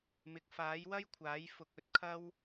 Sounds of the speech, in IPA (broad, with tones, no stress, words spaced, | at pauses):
mɪ˨k̚faː˨˥jwɐ˥jkʷʰaː˨˥j fʊ˧k̚ɵ˧t̚kʰɐ˥w